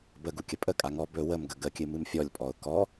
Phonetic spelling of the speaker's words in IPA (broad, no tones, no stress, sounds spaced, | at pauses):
b ə ɡ u kʲ ə pʼ ə kʼ a ŋ ɔ b ɵ w ə m ɡ ə ɡ ə kʲ ɨ m ɨ m fʲ ɔ lʲ pʼ ɔ ʊ̯ k ɔ